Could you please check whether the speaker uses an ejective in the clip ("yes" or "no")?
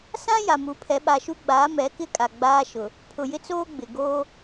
yes